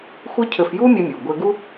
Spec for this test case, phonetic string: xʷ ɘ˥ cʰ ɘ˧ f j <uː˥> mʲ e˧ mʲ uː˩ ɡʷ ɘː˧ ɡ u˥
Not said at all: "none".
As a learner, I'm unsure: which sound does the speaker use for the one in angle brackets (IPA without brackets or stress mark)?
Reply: uː˥